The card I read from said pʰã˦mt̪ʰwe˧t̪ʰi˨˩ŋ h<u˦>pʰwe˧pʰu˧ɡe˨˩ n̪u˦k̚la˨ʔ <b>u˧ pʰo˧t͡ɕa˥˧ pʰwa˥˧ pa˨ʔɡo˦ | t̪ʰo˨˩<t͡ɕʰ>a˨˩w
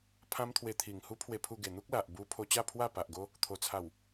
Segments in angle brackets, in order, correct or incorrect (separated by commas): correct, correct, incorrect